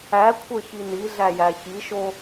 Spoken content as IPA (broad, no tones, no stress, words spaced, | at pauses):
ækʷʰə˞ç iniɮæ jæçiʃo